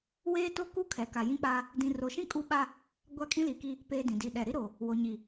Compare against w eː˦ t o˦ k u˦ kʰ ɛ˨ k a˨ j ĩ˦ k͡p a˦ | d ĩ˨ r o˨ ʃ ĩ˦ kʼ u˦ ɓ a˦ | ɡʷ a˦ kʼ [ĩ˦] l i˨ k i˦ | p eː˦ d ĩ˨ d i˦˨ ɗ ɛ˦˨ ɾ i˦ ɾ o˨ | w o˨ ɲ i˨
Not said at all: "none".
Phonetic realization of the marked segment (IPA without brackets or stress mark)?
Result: ĩ˦